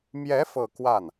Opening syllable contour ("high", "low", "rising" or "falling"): rising